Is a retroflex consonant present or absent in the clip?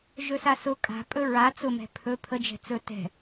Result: absent